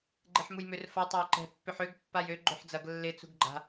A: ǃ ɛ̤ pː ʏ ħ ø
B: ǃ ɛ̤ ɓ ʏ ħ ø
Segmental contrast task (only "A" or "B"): A